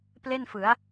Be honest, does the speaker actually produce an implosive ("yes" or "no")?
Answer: no